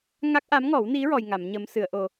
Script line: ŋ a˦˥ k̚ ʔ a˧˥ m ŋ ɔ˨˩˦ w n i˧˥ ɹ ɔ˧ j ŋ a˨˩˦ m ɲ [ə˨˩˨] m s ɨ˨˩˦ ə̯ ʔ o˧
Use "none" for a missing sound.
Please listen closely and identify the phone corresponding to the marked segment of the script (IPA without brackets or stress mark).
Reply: ə˧˥